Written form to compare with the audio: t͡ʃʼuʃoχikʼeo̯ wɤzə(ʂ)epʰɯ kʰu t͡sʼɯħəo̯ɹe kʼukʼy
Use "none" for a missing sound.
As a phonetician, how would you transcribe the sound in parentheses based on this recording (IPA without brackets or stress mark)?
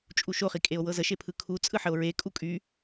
ʃ